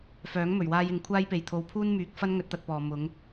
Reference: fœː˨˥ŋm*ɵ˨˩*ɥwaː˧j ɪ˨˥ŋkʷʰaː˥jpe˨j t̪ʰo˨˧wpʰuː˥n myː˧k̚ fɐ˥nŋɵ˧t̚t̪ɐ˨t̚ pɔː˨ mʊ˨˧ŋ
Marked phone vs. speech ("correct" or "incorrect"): correct